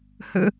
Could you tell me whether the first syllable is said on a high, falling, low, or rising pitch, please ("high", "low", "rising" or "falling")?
low